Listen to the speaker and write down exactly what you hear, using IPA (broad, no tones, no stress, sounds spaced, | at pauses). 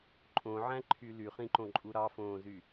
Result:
ǃʼ õ ʕ æ̃ ǃʰ y l y χ ĩ ǃ õ ǃʼ u ɾ ɑ f õː z y